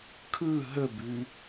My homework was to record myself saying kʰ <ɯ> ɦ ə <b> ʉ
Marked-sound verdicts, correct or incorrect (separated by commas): correct, correct